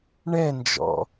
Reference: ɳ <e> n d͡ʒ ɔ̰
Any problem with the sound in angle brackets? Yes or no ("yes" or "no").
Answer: yes